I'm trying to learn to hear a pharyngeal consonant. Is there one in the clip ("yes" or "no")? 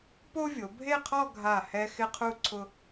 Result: no